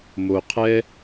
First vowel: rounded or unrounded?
rounded